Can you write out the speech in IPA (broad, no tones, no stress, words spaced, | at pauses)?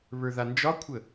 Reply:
βə˞ðand͡ʒɒkʷʰə